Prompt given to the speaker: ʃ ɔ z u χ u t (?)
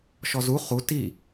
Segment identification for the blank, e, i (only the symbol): i